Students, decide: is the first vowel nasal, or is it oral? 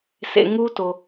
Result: oral